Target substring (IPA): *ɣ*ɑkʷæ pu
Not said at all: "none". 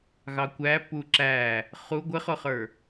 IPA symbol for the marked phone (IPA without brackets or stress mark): ɣ